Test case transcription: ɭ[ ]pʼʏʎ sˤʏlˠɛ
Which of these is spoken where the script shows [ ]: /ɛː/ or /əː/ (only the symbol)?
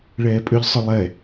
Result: ɛː